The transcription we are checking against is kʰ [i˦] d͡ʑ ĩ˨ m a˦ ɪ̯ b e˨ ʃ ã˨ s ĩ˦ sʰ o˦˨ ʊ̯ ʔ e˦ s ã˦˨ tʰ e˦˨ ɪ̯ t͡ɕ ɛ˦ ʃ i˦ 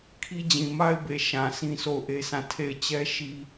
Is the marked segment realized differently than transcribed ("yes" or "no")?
no